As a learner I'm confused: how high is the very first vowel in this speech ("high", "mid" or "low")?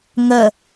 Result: mid